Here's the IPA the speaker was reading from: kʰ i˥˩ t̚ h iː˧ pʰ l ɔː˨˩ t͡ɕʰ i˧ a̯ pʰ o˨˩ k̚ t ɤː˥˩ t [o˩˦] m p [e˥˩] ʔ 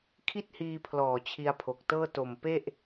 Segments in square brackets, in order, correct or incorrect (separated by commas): incorrect, correct